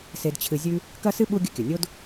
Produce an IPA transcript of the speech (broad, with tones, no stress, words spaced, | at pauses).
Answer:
se˨dt͡ɕʰɨ˨zʲʉ˦ | kɐ˥sɨ˥ɓu˦ ɡʲɵ˦kʲɵ˩nʲo˥d